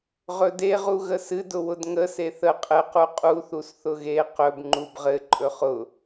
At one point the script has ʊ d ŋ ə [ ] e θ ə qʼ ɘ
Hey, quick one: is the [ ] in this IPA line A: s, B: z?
A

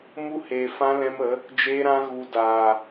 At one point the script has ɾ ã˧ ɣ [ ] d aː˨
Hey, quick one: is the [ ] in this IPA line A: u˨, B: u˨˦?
A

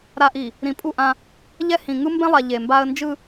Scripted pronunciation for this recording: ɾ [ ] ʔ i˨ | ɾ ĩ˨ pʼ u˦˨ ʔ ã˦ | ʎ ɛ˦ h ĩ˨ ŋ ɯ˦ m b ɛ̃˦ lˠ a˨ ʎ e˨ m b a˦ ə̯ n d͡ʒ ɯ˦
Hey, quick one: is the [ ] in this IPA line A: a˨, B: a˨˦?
A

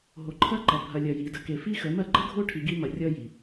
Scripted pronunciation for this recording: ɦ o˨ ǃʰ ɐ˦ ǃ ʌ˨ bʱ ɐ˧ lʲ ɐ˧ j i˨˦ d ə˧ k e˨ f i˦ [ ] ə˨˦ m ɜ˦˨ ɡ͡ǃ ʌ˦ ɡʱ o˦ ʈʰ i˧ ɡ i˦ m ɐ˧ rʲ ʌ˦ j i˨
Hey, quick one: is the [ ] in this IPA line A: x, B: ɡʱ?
A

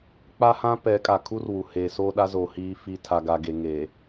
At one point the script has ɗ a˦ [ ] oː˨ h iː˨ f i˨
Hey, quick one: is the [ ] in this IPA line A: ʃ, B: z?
B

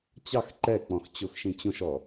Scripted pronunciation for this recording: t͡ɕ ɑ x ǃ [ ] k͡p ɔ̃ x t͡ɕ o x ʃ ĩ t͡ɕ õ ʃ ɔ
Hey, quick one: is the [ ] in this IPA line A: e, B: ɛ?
B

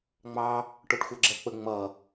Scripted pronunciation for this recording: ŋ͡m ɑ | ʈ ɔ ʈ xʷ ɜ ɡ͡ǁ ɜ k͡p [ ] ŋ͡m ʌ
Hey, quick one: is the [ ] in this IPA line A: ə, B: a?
A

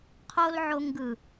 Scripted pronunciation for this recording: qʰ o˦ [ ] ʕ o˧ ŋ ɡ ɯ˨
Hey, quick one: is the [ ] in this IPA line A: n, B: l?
B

